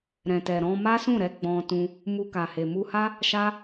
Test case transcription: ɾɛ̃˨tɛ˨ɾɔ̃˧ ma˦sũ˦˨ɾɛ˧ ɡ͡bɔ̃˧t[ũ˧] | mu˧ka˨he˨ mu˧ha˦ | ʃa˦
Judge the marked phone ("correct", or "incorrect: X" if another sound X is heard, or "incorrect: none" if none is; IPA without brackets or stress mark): correct